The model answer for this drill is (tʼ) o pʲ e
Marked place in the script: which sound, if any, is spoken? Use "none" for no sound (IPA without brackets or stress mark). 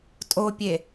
tʼ